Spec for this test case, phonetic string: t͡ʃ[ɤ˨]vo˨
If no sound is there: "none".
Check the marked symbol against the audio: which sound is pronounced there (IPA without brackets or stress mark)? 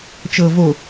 ɤ˨